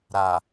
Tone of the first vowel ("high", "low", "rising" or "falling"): low